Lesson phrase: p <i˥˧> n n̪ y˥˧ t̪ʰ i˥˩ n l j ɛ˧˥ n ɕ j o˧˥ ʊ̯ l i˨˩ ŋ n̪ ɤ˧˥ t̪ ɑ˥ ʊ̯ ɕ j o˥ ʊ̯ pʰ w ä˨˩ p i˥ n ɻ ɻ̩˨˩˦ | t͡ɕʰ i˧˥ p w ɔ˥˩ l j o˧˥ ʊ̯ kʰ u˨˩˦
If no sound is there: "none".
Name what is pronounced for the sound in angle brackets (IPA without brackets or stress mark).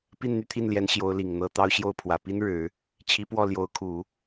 i˥˧